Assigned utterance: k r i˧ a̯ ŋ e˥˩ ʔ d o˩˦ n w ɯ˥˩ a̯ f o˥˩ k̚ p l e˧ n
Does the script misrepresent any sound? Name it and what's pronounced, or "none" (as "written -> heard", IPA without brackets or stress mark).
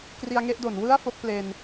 none